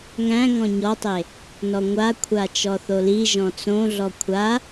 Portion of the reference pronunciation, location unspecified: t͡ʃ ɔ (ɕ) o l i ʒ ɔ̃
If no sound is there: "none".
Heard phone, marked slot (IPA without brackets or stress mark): θ